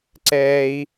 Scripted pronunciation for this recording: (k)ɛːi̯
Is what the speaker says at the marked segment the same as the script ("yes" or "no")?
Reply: no